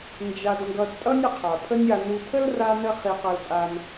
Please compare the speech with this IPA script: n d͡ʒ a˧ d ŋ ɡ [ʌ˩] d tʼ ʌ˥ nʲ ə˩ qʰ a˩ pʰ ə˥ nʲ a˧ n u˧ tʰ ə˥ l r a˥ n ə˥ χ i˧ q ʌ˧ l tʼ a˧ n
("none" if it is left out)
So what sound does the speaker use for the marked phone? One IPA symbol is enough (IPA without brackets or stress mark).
ʌ˧